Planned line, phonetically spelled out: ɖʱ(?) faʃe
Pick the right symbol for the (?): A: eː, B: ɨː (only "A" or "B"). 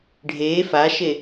A